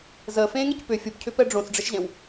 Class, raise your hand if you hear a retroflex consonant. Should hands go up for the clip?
yes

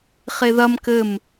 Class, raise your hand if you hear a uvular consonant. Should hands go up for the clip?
yes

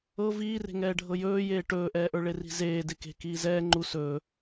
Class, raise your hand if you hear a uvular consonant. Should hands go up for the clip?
no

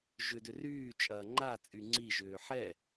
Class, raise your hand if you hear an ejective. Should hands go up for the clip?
yes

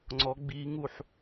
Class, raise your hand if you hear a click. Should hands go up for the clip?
yes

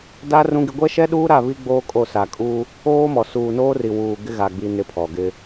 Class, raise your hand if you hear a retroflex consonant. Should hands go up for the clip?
no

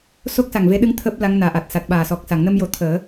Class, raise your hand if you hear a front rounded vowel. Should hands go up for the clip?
no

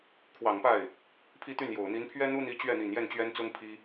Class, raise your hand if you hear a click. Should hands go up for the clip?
no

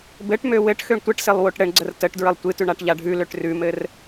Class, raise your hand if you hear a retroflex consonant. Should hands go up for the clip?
yes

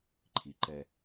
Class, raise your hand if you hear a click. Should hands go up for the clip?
yes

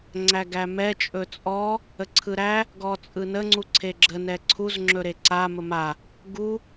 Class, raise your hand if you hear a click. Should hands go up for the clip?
yes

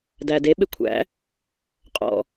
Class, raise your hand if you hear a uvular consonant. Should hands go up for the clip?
yes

